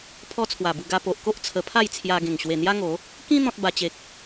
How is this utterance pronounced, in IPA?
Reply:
pʰ ɔ˦ t͡sʰ w a˨˩ b u˧ ɡ a˧ p o˨ ʔ k o˦ ʔ t͡sʰ ə˧ pʰ a˥˧ j t͡sʰ j a˧ ɡ ẽ˨˩ ŋ ɕ w e˨˩ n̪ j a˦ ŋ o˨˦ | k ĩ˦ n̪ ɔ̃˦ t̚ b a˧ t͡ɕ e˨ k̚

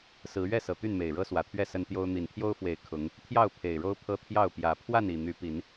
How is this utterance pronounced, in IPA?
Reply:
s ɹ̩˨˦ ɥ ɛ˥˨ s ɤ˨˩ t̪ y˥˨ n m e˨˩ ɪ̯ ɻ ɤ˦ s w ä˨˩ t̪ʰ ɥ ɛ˥˨ s ə˦ n t̪ j o˦ ʊ̯ n̪ i˨˩ n t̪ʰ j o˦ ʊ̯ f w e˨˩ ɪ̯ kʰ ʊ˨˦ ŋ | t̪ʰ j ɑ˥˨ ʊ̯ pʰ e˨˩ ɪ̯ ɻ o˦ ʊ̯ pʰ ɤ˦ t̪ʰ j ɑ˥˨ ʊ̯ p j ä˨˦ pʰ w a˥˨ n i˨˩ n̪ y˨˦ p i˨˦ n

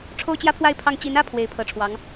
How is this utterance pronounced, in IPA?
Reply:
ʈ͡ʂʰ o˥ ʊ̯ t͡ɕ j ä˥ pʰ w a˥˧ ɪ̯ pʰ ɑ˥˩ ŋ t͡ɕ i˧˥ n ä˥ pʰ w e˧˥ ɪ̯ pʰ ɤ˧˥ ʈ͡ʂʰ w ɑ˧˥ ŋ

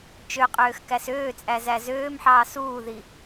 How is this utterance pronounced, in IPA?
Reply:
t͡ʃ ø qʼ øː x k æ s øː t͡sʼ æ z æ z øː m ħ ɑː s uː ð i

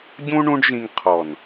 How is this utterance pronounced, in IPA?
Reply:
ɟ ũ˦ ɳ ũ˦ ɖ ʒ ĩ˧ ŋ qʰ ɔ˨ n

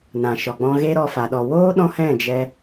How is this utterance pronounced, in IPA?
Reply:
n ã˨ ʃ ɔ˨ ɡ͡b ɔ̃˧ ɣ e˦ ɾ ɔ˧ f a˨ ɗ ɔ˨ w oː˦ ɗ ɔ̃˦ h ɛ̃˦˨ d͡ʒ ɛ˧

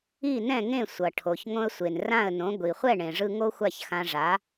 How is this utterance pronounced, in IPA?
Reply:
i˥˩ n ɛ̃˥˩ ŋ ẽ˥˩ sʷ ʌ˩ ʈʰ o˩ ç ŋ õ˧ ə̯ sʷ e˩ n r ã˥˩ ə̯ n õ˩˥ ɡʷ i˩ χʷ ɛ˥˩ ɳ ẽ˩ ʐ ɯ˧ ŋ o˥ xʷ a˥˩ ç x ã˧ ʐ a˩˥

